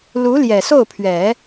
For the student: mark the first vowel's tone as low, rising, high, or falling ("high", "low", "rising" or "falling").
rising